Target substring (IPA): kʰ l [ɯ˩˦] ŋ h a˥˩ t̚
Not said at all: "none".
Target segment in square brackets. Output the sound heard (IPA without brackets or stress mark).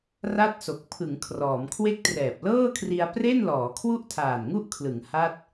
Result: ɯ˩˦